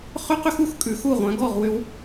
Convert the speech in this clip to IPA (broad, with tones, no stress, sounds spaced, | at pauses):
χ ʏ˥ q ʏ˥ x u˧ x kʼ ʉ˩˧ x u˧˩ ʁʷ œ̃˩˧ ɡ ɔ˧˩ ʁ w ʏ˧ w